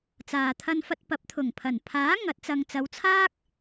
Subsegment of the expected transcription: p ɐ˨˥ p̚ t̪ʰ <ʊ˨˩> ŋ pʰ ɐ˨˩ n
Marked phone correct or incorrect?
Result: correct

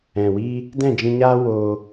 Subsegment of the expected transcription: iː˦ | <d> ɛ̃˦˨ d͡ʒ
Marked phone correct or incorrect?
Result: correct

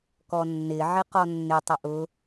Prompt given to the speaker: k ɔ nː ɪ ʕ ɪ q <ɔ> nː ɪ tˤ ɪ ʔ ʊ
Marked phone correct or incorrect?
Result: correct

